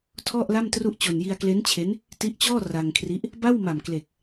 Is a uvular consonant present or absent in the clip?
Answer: absent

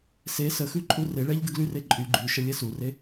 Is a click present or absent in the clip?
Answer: present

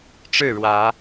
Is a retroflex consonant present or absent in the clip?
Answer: present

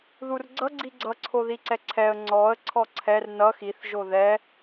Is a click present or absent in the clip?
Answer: present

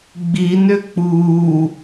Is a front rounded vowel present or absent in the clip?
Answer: present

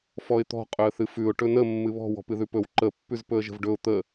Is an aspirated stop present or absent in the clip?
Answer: absent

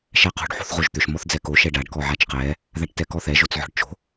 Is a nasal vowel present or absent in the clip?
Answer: absent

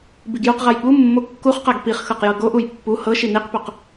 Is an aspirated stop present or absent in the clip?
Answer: absent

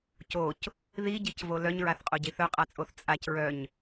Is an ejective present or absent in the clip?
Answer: present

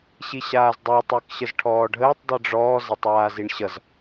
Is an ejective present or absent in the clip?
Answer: absent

